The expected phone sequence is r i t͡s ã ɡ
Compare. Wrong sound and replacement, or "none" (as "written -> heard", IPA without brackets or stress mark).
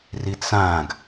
none